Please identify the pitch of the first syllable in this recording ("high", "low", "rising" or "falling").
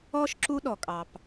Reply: high